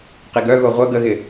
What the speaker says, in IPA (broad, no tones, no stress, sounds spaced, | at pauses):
q i ɡ œ ɣ o ʁʷ ə ɡ ə ɣ ɪ